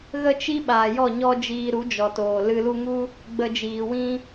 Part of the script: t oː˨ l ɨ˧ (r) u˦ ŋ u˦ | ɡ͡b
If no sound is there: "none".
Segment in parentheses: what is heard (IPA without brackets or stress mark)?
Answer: l